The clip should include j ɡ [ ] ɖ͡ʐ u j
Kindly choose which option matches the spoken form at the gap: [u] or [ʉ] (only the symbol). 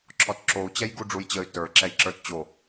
u